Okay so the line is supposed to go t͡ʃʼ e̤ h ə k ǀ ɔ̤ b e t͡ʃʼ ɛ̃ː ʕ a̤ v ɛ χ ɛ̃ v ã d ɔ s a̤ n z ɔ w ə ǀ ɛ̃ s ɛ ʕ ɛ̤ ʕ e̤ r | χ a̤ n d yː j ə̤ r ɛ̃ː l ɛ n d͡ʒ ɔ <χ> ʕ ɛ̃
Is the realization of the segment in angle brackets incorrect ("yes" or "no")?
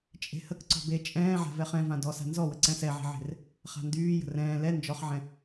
no